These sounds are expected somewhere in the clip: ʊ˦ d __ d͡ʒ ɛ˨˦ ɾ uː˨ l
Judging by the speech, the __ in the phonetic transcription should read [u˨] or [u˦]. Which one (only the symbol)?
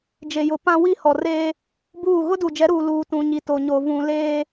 u˨